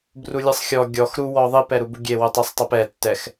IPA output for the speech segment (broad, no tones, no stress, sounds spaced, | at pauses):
b r u lʲ ɯ sˤ xʲ ɔ ɡʲ ɔ x ɾ u w ɔ ðˤ i p ɛ ɾ u b u ɡʲ e w u tˤ i sˤ tˤ e p ɛ tː ɛ x